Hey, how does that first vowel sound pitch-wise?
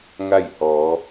falling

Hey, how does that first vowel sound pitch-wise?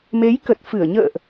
rising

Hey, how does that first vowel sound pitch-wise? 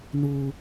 high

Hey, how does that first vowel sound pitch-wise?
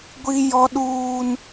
high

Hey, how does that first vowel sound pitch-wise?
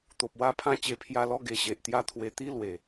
low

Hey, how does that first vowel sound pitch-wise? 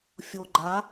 low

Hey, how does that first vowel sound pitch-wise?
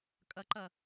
rising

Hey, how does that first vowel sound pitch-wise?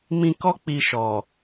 high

